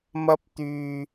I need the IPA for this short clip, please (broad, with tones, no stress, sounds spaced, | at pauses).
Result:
m ɐ˧ p̚ t̪ yː˨